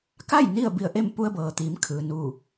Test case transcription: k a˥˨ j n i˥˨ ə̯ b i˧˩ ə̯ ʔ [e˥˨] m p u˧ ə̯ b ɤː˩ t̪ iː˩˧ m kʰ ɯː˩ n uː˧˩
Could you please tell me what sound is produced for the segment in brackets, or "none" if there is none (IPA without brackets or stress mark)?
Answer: e˥˨